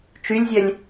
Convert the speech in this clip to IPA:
t͡ʃ y lʲ zʲ œ lʲ

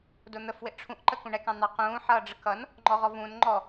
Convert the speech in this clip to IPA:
d ʊ n̪ ə f w ɪ ʔ ʈ͡ʂʰ ũ ʔ ǃ ə k ũ ɳ ɛ k ɑ̃ n̪ ɑ q ũː ħ ʌː ɖ͡ʐ ə k ʌ n | ŋ͡ǃ ɔ ʁ ɔ v ũ n ŋ͡ǃ ɔ

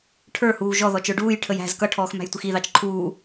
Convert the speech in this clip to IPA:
ʈʰ ə˞ h uː ʒ ɔ ð ɔ t͡ʃ ə˞ ɖ uː j ʈʰ ə j æ̤ z k ʌ ʈʰ ɔː x m æ̤ j tʷ ɪ x i ð ɑ t͡ʃ ǃʰ uː

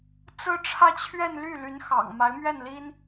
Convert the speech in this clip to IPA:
t͡s ɹ̩˥ ʈ͡ʂʰ ä˥˧ t͡ɕʰ ɥ ɛ˥˧ n l y˥˩ l y˧˥ n x ɑ̰˨˩ ŋ m a˧˥ ɪ̯ m ɥ ɛ˥˩ n l i˥ n

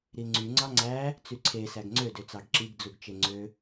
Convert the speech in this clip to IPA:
ɾ i ŋ͡ǀ y ŋ͡ǀ ɑ ŋ͡ǀ æ | t͡s y ǀʰ e s æ ɡ ŋ͡ǀ ø d ø t͡s ɑ ɡ ǁ i ɡ d͡z u ɡ t͡ʃ e ŋ͡ǀ ø

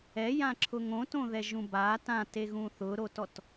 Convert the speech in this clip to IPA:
ɛ j ã ǁʰ ʊ ŋ õ t õ ð ɛ ʒ ũ b a t ã t e ɣ ũ θ ʊ ɾ o t ɔ t

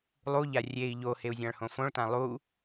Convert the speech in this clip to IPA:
lˠ u ʎ a rʲ e i̯ ʎ o h e u̯ zʲ ã ɭ h õ f õ ɭ t ã lˠ u

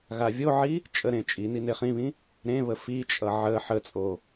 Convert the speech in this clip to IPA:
ɣ a vʲ o ʕ i | t͡ʃʼ ə ɾ ẽ t͡ʃʼ i n i n e χ ĩ β ĩ | ɾ ẽ β ə f i t͡ʃʼ ʌ ʕ ə ħ ə t͡sʼ o

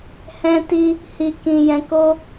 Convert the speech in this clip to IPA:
h ɛ̃˧ t i˧ | h i˨ k ĩ˨ j ɛ̃˨˦ k o˦

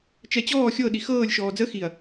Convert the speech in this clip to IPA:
t͡ʃ ɛ t͡ɕ ɔː xʲ ɤ ɗ i x ɤː lʲ ʃ ɔː d͡z ə x i ɐ̯

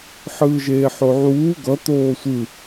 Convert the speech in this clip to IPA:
ħ ɯː ʒ eː ħ o ʕ uː ɡ ʌ t̪ oː sʷ ɯ

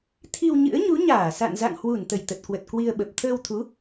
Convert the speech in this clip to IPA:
t̪ʰ i˧ w ɲ ɨ̰˧˥ ə̯ ɲ u˨˦ ɲ aː˧˩ s a̰˧˨ n z a̰˧˨ ŋ h w u˧˩ n t̪ ə˧˩ j t̪ ə˨˩ t̚ k w ə˨˩ t̚ k w i˧ ə̯ ɓ ə˨˩ p̚ t̪ʰ əː˧ w t̪ʰ u˨˦

